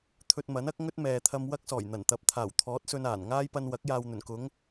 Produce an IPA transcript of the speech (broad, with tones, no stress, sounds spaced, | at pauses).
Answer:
t̪ʰ ɵ˧ t̚ m ɐ˨˥ n ɐ˥ k̚ ŋ ɵ˥ t̚ m ɛː˨ t̪ʰ ɐ˧ m w ɐ˥ k̚ s ɔː˨˩ j n̪ ɐ˨˩ n t̪ ɐ˨˥ p̚ t̪ʰ aː˨˩ w t̪ʰ ɔː˨˥ t̚ s ɵ˧ n aː˨˩ n ŋ aː˥ j p ɐ˧ n w ɐ˨˥ k̚ j aː˨ w n̪ ɵ˨˩ n k ʊ˨˧ ŋ